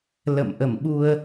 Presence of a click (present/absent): absent